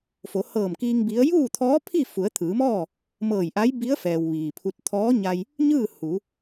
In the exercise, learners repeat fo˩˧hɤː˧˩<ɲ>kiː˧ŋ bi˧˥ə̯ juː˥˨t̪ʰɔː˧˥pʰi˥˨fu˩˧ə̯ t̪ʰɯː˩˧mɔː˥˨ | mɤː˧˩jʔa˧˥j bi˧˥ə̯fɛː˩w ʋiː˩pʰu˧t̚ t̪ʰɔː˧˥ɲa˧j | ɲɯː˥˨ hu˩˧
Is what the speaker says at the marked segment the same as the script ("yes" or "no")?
no